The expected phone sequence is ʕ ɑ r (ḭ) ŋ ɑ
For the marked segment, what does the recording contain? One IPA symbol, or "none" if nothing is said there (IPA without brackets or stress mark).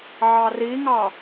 i